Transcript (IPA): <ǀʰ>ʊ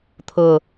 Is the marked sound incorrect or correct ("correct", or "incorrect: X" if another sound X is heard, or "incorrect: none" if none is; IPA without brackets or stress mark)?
incorrect: t̪ʰ